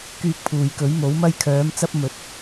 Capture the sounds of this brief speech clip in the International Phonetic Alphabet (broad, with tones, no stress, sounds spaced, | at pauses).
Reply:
k yː˧ k̚ pʰ uː˨ j k ɵ˨˥ ɥ m o˨˥ w m ɐ˧ j kʰ œː˨˧ m t͡s ɐ˧ p̚ m ɵ˨˥ t̚